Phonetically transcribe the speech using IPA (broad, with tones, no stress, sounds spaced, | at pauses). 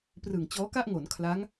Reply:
p r ɯ˨˩ ŋ t͡ɕ ɔː˦˥ k a˥˩ ʔ ŋ o˩˦ n kʰ l a˦˥ ŋ